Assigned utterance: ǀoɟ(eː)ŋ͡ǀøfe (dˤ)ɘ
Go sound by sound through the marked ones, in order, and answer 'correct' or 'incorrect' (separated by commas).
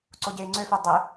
correct, correct